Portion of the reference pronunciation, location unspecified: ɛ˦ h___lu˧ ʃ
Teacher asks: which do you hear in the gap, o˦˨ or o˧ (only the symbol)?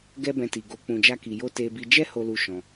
o˧